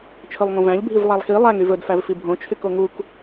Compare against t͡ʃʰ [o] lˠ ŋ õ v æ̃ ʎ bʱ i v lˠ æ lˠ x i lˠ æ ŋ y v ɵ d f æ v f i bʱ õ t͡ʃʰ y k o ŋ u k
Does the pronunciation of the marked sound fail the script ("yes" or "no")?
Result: yes